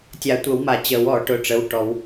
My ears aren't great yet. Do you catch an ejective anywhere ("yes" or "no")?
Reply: no